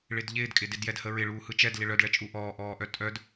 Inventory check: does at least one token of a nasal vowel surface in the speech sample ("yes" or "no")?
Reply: no